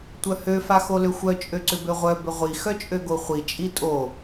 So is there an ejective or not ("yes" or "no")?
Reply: yes